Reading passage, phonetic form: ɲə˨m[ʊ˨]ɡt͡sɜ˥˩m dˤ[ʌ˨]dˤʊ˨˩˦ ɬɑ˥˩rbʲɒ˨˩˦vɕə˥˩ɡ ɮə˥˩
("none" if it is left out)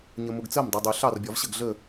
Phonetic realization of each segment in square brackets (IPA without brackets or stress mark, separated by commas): ʊ˨, ʌ˨